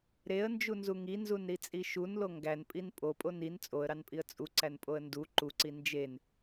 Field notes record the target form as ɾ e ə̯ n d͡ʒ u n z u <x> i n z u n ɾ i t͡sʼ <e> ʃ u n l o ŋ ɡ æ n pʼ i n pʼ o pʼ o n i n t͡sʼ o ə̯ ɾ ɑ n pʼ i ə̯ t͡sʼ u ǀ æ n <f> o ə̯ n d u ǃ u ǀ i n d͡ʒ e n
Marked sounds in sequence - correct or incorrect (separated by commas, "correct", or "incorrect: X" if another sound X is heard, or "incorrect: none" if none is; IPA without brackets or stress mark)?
incorrect: ŋ, incorrect: i, incorrect: pʼ